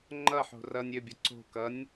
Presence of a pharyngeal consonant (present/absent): present